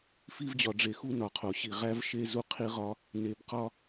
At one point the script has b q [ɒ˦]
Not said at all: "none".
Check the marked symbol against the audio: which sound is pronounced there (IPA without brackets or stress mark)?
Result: ɒ˦